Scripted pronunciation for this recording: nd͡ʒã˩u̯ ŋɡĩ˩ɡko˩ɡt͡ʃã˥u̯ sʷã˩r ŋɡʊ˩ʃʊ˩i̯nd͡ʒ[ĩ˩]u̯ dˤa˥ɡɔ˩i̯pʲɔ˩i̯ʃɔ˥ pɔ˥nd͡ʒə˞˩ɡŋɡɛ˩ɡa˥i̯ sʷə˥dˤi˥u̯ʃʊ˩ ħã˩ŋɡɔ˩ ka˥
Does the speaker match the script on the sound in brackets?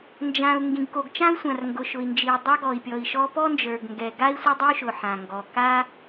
no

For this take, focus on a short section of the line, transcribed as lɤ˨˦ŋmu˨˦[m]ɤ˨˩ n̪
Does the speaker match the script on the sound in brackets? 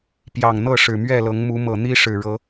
yes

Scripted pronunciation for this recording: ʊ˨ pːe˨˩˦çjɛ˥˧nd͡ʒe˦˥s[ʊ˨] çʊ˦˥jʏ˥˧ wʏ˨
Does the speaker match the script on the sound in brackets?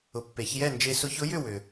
no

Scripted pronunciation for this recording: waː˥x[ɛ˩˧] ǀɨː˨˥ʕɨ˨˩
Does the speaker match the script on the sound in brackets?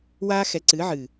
no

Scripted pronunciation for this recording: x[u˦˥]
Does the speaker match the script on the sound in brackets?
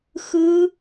no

